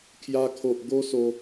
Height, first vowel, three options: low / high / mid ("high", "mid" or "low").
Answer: low